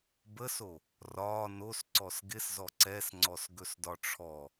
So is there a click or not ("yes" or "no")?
yes